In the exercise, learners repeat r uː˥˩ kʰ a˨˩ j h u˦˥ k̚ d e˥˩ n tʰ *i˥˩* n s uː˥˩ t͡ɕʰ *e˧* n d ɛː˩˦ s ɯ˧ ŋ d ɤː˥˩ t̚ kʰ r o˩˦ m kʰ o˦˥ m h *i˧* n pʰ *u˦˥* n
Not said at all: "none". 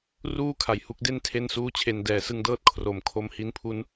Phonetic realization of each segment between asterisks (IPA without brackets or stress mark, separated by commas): e˥˩, e˧, i˦˥, u˦˥